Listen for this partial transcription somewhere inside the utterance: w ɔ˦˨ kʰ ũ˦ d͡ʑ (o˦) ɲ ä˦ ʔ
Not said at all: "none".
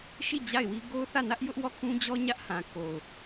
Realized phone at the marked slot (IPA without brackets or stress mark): ɔ˦